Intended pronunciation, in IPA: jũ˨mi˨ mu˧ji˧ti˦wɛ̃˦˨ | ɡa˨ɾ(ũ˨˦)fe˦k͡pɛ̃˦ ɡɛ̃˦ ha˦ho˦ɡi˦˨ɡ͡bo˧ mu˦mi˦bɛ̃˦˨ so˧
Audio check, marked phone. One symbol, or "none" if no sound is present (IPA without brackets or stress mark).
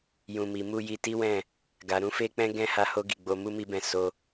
ũ˨˦